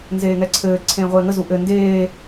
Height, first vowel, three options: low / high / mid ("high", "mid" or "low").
mid